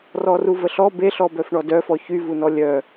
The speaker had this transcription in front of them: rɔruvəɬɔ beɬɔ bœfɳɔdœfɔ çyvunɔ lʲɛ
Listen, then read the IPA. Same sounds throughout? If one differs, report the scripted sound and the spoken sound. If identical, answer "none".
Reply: ɛ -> œ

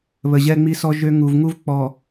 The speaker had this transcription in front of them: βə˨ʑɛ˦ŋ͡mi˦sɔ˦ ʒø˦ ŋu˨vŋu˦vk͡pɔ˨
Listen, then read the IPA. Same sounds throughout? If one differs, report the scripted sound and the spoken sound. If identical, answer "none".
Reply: none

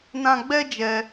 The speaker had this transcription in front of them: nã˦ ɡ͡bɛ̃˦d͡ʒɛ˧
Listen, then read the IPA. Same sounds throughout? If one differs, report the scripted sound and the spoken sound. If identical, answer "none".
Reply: ɛ̃˦ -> ɛ˦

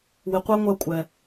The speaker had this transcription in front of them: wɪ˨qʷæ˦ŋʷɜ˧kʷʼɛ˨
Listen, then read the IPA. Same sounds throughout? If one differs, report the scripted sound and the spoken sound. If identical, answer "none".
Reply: none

